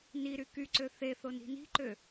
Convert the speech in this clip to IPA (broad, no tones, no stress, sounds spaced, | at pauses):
n i ɾ y k y ǀ ø θ e θ o n i̤ n i̤ ǃ ø